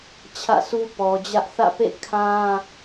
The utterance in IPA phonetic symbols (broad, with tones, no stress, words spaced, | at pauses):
t͡ɕʰä̰˦˨su˦pɔ˨d͡ʑä˦ʔ θä̰˦˨pḛ˦˨ kʰã˦